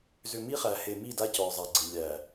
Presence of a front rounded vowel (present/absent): present